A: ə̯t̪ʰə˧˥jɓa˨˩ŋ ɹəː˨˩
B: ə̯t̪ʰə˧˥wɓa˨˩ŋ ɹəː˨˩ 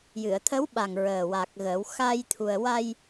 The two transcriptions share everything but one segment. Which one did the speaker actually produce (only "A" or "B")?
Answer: B